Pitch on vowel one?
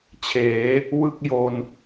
rising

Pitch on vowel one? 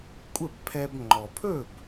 falling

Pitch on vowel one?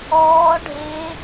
rising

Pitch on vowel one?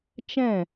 falling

